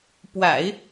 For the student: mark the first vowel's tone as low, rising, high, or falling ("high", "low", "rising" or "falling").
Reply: low